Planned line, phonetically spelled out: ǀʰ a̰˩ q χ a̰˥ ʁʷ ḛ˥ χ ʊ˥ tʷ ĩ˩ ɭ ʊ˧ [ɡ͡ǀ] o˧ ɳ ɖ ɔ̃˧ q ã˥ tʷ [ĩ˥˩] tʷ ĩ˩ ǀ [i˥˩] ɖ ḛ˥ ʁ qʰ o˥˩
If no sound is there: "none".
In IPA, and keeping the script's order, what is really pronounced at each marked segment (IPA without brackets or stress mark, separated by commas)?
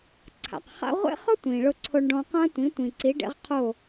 ǀʰ, ĩ˩˥, i˩˥